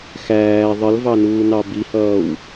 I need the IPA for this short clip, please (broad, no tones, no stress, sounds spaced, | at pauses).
x æː ðˤ ə l v ɑ n uː n ɑ b i h ʌː w